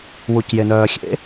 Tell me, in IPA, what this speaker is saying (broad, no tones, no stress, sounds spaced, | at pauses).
w u c j e n œː xʲ ḛ